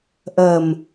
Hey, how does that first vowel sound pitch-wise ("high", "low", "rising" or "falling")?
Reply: low